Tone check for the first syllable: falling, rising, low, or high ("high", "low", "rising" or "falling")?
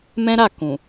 high